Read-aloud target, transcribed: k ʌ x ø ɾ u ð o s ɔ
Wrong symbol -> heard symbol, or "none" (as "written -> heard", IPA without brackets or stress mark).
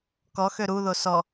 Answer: ʌ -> ɔ